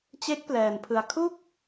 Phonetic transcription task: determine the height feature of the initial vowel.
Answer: mid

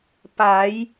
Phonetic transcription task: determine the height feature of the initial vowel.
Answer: low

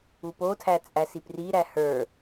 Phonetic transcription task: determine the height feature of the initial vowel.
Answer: high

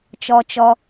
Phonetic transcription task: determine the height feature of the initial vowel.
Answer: mid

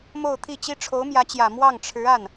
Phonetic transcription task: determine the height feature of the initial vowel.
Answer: mid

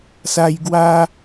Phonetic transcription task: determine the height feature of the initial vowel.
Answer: low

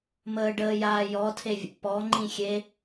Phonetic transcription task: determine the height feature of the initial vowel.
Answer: mid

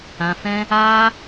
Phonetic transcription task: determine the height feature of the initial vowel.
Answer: low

